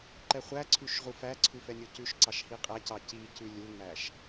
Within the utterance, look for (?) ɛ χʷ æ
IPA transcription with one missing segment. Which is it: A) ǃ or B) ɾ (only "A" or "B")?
A